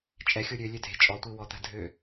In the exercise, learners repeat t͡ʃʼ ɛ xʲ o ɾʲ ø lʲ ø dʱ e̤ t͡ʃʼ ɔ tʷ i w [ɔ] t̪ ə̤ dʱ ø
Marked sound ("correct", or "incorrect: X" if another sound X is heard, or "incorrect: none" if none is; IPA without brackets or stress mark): correct